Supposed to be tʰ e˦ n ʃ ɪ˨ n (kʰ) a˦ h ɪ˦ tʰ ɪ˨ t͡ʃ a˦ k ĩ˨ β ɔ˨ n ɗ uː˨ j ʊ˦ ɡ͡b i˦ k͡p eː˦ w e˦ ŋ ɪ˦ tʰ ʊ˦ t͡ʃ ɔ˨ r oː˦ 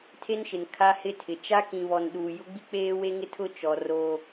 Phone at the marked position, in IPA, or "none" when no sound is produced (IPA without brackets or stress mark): kʰ